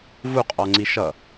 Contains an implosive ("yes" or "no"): no